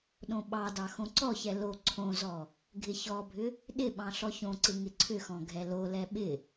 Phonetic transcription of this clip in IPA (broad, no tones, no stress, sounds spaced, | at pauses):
ɗ õ ɓ ɑ d ɑ x õ ǀ ɔ ç ɛ l o ǀʰ õ z ɔ | ɡʱ ɪ ç ɔ bʱ ʏ | ɗ ɪ ɓ ɑ̃ ɬ ɔ ç õ ǀ ɪ ŋ ɪ ǀʰ ʏ x ɔ̃ ɡʱ ɛ l o l ɛ ɓ ɪ